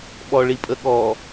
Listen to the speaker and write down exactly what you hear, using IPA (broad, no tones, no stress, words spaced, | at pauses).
ɓɔɭipʼəɠɔ